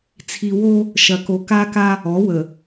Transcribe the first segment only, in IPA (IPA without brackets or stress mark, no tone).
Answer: t͡sʰ